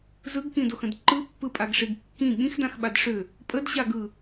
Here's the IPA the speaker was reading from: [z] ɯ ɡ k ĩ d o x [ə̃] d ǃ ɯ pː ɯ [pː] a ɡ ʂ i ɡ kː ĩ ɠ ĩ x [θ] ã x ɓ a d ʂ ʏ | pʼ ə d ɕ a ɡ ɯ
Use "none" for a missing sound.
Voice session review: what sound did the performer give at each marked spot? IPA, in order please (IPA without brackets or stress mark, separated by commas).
z, ə̃, pʼ, d